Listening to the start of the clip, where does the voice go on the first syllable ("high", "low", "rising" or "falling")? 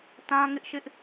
high